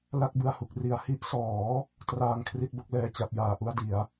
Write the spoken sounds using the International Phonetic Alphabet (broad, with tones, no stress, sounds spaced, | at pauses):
l a˥˩ k̚ b ɯ˧ a̯ h u˨˩ k̚ r i˩˦ a̯ h i˦˥ ʔ s ɔː˩˦ | t r aː˧ ŋ kʰ r i˥˩ t̚ b o˦˥ k̚ l ɛː˧ t͡ɕ a˥˩ p̚ j aː˧ ʔ u˥˩ a̯ d i˩˦ a̯